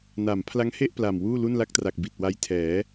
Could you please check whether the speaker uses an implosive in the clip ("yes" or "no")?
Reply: no